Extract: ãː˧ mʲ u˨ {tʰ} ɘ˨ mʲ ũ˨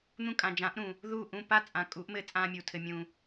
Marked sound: correct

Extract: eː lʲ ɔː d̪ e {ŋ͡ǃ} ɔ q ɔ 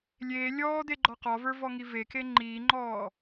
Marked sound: incorrect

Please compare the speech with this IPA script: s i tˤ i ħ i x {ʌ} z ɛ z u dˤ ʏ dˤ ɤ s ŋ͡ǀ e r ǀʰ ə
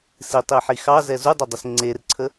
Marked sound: incorrect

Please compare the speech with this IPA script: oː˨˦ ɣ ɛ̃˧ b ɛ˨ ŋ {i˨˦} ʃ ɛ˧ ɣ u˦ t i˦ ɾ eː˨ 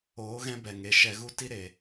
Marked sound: incorrect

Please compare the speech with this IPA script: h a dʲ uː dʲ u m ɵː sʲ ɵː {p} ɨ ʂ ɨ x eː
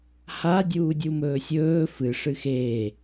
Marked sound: incorrect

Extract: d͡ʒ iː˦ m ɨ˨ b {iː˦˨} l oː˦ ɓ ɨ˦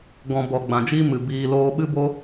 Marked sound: incorrect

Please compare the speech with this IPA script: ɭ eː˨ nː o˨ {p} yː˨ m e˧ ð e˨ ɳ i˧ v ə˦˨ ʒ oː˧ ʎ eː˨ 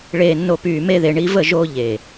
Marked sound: correct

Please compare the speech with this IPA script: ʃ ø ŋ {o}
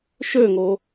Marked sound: correct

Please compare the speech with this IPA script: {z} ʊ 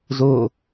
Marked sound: correct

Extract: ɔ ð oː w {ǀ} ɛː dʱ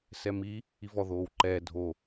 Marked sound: incorrect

